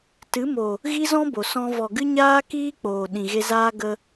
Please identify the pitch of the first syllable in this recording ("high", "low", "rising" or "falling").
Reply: rising